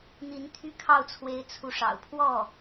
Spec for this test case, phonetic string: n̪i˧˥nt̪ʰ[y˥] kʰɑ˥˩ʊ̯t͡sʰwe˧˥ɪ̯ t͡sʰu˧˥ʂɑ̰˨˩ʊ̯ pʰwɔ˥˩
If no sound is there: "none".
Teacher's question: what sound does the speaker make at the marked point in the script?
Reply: y˥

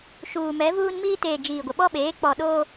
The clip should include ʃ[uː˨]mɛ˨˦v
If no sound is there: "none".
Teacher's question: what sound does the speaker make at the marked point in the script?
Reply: uː˨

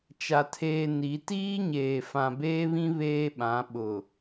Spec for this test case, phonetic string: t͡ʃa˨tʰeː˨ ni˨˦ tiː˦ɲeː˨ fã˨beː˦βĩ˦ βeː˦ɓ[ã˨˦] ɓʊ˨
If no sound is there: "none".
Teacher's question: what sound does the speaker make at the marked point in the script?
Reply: ã˨˦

